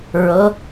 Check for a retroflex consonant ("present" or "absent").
absent